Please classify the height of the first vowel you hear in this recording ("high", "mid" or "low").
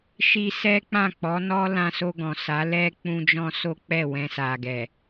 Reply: high